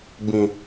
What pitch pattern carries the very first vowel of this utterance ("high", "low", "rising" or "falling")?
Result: low